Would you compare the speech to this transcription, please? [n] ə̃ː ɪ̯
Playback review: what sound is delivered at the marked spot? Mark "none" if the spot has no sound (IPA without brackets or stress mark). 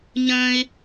ɲ